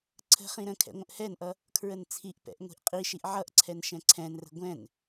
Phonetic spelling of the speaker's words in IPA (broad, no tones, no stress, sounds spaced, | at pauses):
ǀʰ ə̤ χ ĩ ɾ ə̃ kʰ ɛ̰ ŋʷ ə̃ ʔ h ɛ n ʔ ʌ | kʰ ɹ ə n t͡sʰ i ʔ p ɛ̰ ʔ ŋʷ i̤ ʔ qʼ i ʃ i ʔ ʕ ʌ ʔ ǀʰ ɛ n ʃ ɛ̃ ǀʰ ɛ̃ n r ə̤ ɡʷ ɛ̃ n